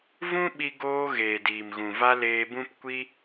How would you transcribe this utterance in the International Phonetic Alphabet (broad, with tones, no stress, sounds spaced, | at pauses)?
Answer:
v ũ˦ ɓ i˧ ɡ oː˧ ɣ eː˨ d iː˨ m ɣ ũ˨ v a˧ l eː˧ b ũ˦ p kʷ i˦